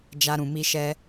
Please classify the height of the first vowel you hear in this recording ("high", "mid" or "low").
low